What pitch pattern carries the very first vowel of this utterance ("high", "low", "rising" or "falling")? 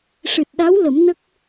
low